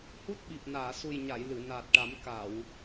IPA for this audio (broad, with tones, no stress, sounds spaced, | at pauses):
h u˦˥ t̚ ɓ i˨˩ p̚ n aː˨˩˨ s u˨˩ j ɲ a˨˩˨ j l ɨ˨˩˨ n aː˨˩ t̚ ʈ a˨˩˦ m k a˨˩˨ w